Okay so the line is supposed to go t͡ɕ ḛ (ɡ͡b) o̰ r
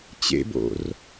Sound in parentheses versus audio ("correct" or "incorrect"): incorrect